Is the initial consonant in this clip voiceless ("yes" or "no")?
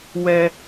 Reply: no